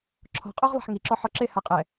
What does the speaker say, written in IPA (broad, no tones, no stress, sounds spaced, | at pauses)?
ǁʰ ɔ̤ qʼ o ʁ lˠ a̤ ħ ŋ i ǁ ɔ ħ ɔ ǁ e h a qʼ ɛ